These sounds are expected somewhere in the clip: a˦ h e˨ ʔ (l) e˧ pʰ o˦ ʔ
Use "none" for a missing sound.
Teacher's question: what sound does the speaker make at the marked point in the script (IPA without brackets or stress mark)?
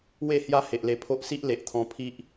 l